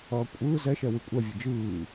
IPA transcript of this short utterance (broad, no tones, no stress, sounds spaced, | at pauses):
ʌː kʷʼ ɯː z ɛ ʃ ɛ w ɯ kʷʼ ɛ vʲ e d͡ʒ ɯː